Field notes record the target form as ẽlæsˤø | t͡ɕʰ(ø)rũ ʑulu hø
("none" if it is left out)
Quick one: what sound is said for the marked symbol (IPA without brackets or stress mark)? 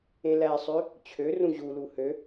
ø